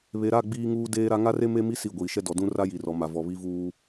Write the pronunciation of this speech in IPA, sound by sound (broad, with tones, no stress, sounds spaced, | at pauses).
β e˨ ɾ a˦˨ ɡ͡b iː˦ ŋ uː˦ d eː˦ ɾ a˦ ŋ a˦ r e˦ m e˦ m i˦ s i˦˨ ɡʷ iː˨ ʃ ɛ˦ d ɔ˨ d ũ˦ r a˦ j i˨ r ɔ˨ m a˨ v ɔ˨ β i˦ v uː˦